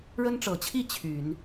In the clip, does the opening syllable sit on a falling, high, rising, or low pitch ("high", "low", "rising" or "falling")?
high